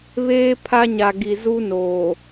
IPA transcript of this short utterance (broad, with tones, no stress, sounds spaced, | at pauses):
β eː˦ pʰ a˦ ɲ a˨ ɡ i˨ z u˦ n oː˨